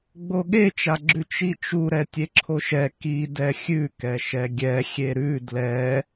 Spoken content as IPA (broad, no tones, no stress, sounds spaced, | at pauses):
ɡ͡b o ɠ e t͡ʃ a ɡ͡ǁ ʉ t͡ʃ i t͡ʃ u ɾ ɛ tʲ e ǁʰ o ʃ ɛ k i d ɛ xʲ ʉ k ɛ ʃ ɛ ɡʲ ɛ xʲ e ɾ ʉ d l ɛ